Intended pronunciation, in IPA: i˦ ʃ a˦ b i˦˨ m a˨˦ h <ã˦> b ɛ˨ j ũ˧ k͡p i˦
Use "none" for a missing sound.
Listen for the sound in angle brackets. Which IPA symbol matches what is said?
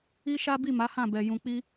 ã˦˨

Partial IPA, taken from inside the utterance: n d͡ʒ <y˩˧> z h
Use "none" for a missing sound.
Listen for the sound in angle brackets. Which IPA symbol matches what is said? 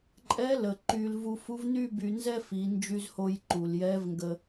y˧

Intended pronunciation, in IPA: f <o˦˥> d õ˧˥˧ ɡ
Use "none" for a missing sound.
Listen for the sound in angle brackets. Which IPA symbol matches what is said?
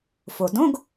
o˩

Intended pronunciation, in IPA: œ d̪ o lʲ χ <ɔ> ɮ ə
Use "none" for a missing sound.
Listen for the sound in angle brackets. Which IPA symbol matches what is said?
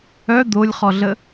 ɔ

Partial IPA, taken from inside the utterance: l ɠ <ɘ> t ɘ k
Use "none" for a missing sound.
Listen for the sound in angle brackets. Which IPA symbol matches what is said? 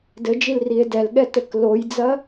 ɛ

